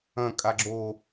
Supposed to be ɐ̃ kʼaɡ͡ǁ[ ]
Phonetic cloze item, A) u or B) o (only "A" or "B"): B